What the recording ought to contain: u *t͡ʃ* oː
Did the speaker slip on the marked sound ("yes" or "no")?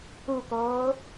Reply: yes